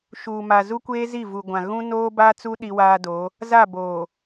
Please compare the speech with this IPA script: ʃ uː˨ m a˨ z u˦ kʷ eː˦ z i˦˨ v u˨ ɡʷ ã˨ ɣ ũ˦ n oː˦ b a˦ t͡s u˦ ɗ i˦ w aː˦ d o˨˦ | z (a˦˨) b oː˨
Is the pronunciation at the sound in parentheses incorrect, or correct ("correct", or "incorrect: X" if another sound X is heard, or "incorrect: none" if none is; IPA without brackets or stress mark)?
correct